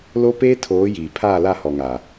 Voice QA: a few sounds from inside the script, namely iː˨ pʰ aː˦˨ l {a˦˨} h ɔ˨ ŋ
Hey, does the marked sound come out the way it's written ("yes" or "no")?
yes